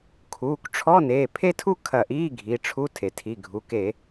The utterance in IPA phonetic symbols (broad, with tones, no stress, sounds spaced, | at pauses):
kʰ uː˩˧˩ k ʈ͡ʂʰ ɔ˧˥˧ n eː˩˧˩ pʰ e˥ tʰ u˥ kʰ ɐ˧˩ ʔ iː˧˥˧ ɡʱ i˩˧˩ ʈ͡ʂʰ u˧˥˧ tʰ e˩ tʰ i˩˧˩ ɡʱ u˩˧˩ k e˧˩˧